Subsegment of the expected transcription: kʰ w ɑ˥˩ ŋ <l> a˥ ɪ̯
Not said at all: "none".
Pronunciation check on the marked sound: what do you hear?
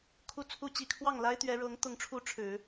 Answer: l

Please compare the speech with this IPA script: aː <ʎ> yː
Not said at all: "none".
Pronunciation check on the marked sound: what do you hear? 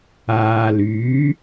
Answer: l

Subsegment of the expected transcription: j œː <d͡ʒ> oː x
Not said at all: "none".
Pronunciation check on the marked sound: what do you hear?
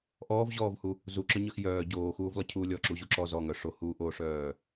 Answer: ɟ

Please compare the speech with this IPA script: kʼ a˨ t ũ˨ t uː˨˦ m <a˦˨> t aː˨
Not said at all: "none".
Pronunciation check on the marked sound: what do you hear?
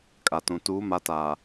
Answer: a˨˦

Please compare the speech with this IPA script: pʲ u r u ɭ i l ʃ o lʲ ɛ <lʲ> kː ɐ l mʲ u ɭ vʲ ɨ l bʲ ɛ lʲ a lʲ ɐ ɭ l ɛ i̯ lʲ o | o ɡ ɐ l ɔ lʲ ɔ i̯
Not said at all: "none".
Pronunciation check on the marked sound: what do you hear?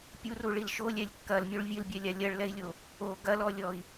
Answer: lʲ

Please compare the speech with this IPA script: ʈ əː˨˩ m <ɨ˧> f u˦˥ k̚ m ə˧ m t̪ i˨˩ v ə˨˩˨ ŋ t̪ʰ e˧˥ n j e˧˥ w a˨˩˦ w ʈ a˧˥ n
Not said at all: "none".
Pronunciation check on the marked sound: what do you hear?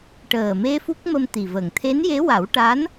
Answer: e˧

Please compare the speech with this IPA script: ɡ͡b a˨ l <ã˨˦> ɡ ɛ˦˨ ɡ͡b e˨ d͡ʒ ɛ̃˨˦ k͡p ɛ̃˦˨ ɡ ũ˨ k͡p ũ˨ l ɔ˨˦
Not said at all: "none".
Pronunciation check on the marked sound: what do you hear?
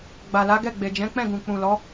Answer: a˨˦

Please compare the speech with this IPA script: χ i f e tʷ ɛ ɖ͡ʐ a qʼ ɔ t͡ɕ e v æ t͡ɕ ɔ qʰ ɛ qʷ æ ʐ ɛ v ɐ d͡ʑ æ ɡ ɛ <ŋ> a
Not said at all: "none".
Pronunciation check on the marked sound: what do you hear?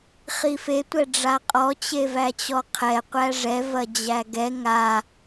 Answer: ŋ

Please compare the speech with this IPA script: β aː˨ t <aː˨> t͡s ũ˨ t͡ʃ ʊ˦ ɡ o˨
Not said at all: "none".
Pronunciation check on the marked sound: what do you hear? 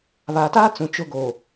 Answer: aː˦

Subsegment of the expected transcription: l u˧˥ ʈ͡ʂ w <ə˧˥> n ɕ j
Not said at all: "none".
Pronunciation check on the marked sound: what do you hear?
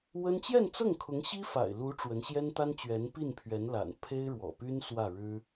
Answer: ə˧˥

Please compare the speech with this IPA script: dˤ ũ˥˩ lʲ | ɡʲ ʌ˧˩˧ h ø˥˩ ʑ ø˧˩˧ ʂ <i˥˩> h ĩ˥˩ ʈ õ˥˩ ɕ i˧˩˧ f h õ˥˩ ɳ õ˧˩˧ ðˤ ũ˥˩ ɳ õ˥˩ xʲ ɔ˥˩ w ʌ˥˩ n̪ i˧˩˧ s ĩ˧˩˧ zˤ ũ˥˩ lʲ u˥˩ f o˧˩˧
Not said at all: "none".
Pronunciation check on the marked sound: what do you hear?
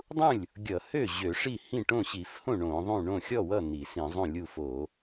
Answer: i˥˩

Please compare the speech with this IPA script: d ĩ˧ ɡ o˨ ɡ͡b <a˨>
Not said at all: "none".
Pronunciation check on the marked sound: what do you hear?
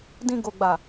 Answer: a˨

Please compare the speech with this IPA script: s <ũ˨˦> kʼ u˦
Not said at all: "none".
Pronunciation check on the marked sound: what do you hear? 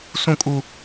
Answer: ũ˦˨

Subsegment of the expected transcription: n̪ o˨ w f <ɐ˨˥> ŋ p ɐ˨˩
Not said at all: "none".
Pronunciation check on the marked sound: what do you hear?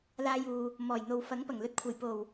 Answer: ɐ˨˥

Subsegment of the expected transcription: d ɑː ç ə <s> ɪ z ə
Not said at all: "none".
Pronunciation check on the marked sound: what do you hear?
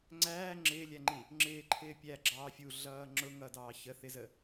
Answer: θ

